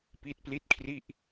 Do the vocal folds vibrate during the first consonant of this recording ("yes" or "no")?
no